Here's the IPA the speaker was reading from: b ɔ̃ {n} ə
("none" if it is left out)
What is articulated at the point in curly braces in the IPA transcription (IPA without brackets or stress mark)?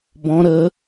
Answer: ɾ